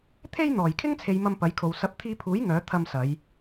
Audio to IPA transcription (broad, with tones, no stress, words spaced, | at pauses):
t̪ʰe˥jn̪ɔː˨j kʰɪ˥ŋt͡sʰe˨˧j mɐ˧mpɐ˨˥jkʰo˨˧w sɐ˨˥p̚t̪ʰiː˧pʰuː˨˥j ŋœː˨˥t̪ʰɐ˧msɐ˨˧j